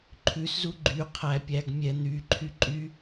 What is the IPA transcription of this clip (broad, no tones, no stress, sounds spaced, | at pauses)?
ǃʰ ʉ s z u ɡ͡ǃ y qʰ æ pʲ æ ɡ mʲ ɛ n̪ y ǃʰ y ǃʼ y